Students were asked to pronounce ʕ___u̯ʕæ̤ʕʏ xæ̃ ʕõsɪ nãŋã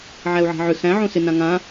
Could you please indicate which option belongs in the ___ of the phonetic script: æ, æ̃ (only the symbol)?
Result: æ